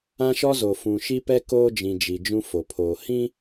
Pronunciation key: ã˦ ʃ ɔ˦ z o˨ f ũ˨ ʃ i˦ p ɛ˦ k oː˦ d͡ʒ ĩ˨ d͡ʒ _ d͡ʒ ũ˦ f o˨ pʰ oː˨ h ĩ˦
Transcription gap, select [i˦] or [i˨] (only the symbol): i˨